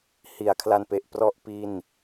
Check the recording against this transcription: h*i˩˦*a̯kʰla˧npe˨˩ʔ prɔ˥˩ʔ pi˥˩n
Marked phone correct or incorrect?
correct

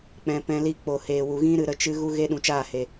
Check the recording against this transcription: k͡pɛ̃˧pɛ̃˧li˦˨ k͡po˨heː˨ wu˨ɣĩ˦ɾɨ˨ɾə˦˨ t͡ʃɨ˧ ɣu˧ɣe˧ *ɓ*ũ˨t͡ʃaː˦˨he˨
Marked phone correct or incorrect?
incorrect: ɗ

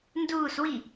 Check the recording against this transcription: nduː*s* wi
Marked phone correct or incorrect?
correct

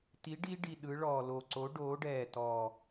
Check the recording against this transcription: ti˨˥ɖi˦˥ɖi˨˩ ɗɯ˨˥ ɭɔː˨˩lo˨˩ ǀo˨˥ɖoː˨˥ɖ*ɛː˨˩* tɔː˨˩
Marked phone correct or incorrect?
correct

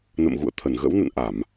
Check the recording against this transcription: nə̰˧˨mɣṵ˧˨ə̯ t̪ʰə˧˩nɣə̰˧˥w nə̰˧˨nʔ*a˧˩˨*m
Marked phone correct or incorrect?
correct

